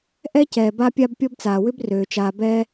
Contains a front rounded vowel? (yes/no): yes